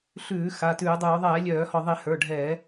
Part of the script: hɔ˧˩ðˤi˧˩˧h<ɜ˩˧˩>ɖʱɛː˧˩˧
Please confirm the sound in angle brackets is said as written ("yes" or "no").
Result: no